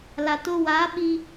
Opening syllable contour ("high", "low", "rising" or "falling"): low